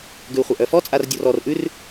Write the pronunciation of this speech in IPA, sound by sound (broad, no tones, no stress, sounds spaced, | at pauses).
ɡ ʉ u̯ χʷ a ʔ œ f ɔ t͡sʼ a r dʲ ɔ r ɔ r ʔ ʉ r